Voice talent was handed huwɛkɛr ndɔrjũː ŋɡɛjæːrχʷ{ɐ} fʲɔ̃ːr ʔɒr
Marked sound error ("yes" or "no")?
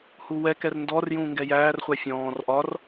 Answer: yes